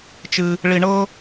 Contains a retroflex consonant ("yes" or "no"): yes